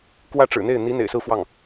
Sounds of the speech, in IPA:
k w ä˥˩ ʈ͡ʂ ɻ̩˨˩ n̪ e˥˩ ɪ̯ n̪ i˧˥ n̪ ḛ˨˩ ɪ̯ s ɹ̩˥˧ f w ɑ˥˩ ŋ

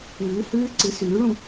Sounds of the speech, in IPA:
ɨː˨˩˦ h ɨː˦˥ ǀ ɨ˨˩˦ s ʉː˨˩˦ ɭ ũ˥˨

